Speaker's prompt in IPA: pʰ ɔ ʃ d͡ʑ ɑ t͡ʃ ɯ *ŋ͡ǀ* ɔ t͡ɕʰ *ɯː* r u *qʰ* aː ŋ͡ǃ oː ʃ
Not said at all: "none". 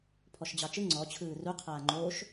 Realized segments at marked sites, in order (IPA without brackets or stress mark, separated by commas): ŋ͡ǀ, ɯː, qʰ